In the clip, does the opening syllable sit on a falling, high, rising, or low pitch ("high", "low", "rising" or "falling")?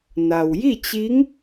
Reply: low